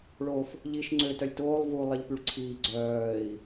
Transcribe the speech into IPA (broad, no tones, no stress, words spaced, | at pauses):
ɭof | ʎiʃ ŋ͡ǀø tœlʲtoːlˠ vu lˠiʎpyɭǀʰiː ɡ͡ǀœːi̯